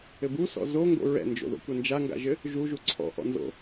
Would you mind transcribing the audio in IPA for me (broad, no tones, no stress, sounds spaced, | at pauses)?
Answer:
ɘ b u s ɔ̰ z o ŋ ɡ o̰ ɹ ɛ̰ n d͡ʒ o̰ ð o̰ kʷ ɛ n d͡ʒ a ŋ ɡ a̰ ʒ ɘ | ʒ u ʒ u ǀʰ ɔ̰ ʔ ɔ̰ n z o̰